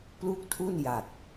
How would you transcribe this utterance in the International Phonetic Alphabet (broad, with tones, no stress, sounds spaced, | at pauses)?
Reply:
p l u˥˩ k̚ tʰ u˥˩ n j a˨˩ t̚